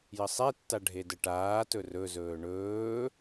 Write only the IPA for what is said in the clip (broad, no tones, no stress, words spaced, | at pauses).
jəsˤetːa ɖʱedəʈaːtɵ rɵzɵː ɳɵː